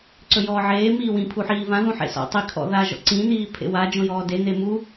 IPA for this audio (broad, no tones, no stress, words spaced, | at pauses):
ǀɵjɔːʕeː miːwĩ pʰuħiːvã ðũħḛsɔ̰tˤi kʰɔ̰ða ʒɔ̰ǀĩ n̪iːpʰḛwa d͡ʒõjɔːde n̪emu